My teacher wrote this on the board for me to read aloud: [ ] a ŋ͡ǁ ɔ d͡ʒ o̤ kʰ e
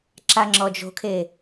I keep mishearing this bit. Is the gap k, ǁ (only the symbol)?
ǁ